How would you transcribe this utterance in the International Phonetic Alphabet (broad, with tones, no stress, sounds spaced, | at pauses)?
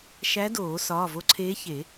ʃ æ˧˥ d oː˨˩˦ s ɒː˩˧˩ v o˧˥ ǀʰ eː˧˥ ç e˨˩˦